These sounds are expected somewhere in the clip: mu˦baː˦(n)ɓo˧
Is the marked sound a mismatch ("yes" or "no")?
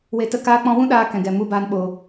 no